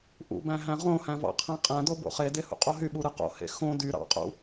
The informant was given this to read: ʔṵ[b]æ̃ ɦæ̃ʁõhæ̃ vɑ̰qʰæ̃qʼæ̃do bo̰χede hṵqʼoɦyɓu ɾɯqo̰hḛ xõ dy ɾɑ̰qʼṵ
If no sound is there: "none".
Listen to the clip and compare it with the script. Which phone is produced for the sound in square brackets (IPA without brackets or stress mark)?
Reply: b